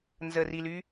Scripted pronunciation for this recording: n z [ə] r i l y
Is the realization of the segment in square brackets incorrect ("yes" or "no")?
no